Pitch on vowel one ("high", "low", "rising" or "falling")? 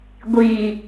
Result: low